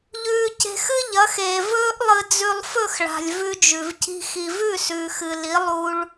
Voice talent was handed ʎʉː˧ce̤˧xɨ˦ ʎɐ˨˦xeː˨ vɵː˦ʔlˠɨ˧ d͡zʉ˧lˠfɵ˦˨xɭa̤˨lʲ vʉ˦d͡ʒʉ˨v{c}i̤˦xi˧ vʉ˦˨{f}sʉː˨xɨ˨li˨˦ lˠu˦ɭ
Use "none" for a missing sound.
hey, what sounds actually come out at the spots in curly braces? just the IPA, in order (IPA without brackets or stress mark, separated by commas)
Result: c, none